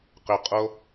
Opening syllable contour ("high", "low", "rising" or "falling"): low